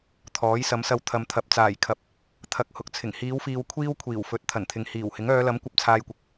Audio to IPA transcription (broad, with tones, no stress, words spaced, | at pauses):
t̪ʰɔː˨˥jsɐ˨˥msɐ˧w t̪ʰɐ˨mt̪ʰɐ˨p̚ t͡saː˨˩jkʰɐ˨p̚ | t̪ʰɐ˧k̚ hʊ˨k̚t͡sʰɪ˨˩ŋ hiː˨˧wfiː˨w kʷʰiː˥wkʷʰiː˨˩wfɵ˨˥t̚ t̪ʰɐ˨˩nt̪ʰɪ˨ŋhiː˨˩whɪ˨˥ŋ œː˨˧lɐ˨˥mkʷɐ˧p̚ t͡sʰaː˧jkʷɪ˨k̚